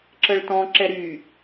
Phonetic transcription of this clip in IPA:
ǁəɭtɔ̃ ǁɛɾy

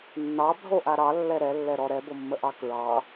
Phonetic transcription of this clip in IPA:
nːɑbʱoʔa ɾɑlːɛ ɾɛlːɛɾɔ ɾɛbomːəʔɑ kɹɑ

